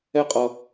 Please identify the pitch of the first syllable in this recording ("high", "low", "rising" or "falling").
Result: high